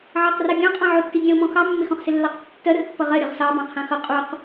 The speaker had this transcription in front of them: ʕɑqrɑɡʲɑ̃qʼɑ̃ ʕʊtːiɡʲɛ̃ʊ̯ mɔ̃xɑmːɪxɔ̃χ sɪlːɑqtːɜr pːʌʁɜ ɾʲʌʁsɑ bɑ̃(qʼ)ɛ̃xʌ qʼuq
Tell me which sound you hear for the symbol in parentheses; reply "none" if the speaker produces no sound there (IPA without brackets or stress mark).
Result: qʰ